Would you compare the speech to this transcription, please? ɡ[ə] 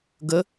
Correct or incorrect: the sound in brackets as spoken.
correct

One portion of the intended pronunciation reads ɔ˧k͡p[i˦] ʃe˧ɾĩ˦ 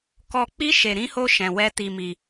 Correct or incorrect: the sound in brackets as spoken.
correct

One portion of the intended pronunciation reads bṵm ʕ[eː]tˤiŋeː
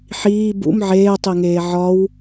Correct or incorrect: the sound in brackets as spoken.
correct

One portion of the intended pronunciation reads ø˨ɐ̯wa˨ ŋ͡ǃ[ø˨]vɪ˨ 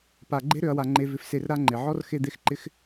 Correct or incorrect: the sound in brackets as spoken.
incorrect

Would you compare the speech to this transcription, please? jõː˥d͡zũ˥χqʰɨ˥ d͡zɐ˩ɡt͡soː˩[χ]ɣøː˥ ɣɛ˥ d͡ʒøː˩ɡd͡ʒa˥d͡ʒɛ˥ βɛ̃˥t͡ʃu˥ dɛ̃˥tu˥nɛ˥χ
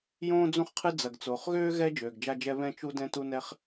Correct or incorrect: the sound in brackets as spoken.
correct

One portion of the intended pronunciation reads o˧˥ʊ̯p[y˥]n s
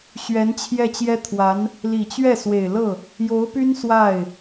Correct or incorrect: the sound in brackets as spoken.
correct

